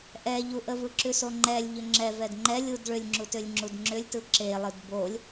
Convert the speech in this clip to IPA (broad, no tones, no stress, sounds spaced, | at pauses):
ʔ ɛ ʎ u ʔ ə v ɯ ǁ ʉ s o ŋ͡ǃ ɛ lʲ ʎ ʏ ŋ͡ǁ ɛ v ɛ d ŋ͡ǃ ɛ lʲ u d ɭ ʏ lʲ ŋ͡ǁ u t ʏ lʲ ŋ͡ǁ u d ŋ͡ǁ ʏ lʲ t ɯ ǁ e lˠ ɯ d b o lʲ